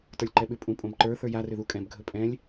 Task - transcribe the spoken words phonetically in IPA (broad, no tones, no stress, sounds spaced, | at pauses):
t ə˞ lʲ ǃ ɛ ɓ ʏ pʼ ũ pʼ õ b ǃ ə˞ θ ə˞ j a r ʏ ð u kʼ ɛ̃ b ɡʱ ɵ pʼ ɛ̃ lʲ